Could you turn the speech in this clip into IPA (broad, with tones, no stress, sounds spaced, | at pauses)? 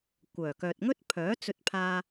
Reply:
kʷ œː˨˩ k œː˨ t̚ ŋ ɵ˥ t̚ pʰ œː˨˥ t͡s ɵ˧ t̚ pʰ aː˧